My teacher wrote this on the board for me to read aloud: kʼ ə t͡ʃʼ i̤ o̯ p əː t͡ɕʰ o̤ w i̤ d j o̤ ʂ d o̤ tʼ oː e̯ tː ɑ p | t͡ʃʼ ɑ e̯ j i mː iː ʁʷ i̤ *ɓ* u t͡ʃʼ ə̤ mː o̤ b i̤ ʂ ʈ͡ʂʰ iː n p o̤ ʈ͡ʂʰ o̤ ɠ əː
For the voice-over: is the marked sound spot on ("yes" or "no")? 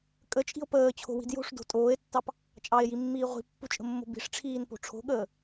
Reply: no